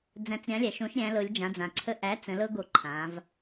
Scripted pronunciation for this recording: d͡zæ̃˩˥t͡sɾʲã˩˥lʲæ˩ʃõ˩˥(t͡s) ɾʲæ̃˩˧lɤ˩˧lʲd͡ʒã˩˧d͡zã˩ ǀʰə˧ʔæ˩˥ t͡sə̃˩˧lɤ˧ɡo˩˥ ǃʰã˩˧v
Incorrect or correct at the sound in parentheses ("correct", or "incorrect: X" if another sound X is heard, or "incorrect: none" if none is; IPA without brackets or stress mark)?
incorrect: ʃ